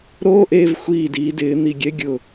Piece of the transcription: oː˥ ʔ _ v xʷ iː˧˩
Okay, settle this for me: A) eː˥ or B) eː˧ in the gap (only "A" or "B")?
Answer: B